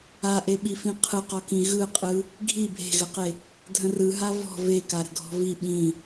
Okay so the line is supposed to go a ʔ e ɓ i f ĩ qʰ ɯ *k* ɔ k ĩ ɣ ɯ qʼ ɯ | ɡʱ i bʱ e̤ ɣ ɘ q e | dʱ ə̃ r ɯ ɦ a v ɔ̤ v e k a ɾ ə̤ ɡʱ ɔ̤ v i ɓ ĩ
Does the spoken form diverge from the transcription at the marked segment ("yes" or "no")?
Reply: yes